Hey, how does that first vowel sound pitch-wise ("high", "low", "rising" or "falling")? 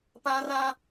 high